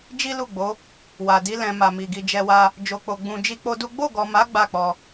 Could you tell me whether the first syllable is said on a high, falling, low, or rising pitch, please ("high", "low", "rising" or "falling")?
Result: high